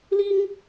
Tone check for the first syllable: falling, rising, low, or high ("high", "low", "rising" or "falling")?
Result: high